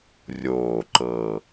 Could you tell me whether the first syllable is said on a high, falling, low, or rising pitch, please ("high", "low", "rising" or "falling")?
low